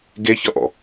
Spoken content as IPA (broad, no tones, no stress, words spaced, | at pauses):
ɡeçʌʔɔ̰